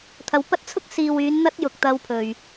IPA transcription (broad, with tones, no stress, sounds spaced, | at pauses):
t̪ʰ ɐ˨˧ w p ɐ˥ t̚ t͡sʰ ʊ˥ k̚ s iː˨ w yː˨˧ n n̪ ɐ˥ t̚ j ʊ˨ k̚ t̪ ɐ˧ w pʰ ɵ˨ ɥ